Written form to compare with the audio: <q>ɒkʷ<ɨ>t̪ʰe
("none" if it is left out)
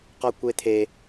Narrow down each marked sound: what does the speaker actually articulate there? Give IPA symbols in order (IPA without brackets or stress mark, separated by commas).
q, e